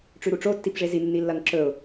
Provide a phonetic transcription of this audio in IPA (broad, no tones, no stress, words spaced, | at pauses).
ʈ͡ʂʉɾuʈ͡ʂo tːipʐezi nːilːɐŋǁɵʊ̯